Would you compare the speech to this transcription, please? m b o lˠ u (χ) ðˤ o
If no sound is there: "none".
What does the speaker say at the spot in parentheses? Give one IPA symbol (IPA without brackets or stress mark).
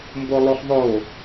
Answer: χ